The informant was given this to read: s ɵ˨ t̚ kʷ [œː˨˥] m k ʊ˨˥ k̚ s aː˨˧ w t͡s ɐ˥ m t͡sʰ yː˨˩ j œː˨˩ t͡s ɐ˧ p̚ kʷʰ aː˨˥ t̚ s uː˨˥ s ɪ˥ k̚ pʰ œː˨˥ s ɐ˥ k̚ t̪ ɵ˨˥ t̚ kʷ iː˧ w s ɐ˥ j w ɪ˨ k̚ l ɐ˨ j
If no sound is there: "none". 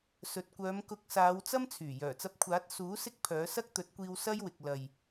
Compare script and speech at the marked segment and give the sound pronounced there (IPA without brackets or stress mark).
œː˨˧